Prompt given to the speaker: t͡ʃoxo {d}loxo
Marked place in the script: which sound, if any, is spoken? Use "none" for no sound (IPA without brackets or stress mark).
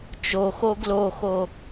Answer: ɡ